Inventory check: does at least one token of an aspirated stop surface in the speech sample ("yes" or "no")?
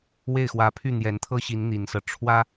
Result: yes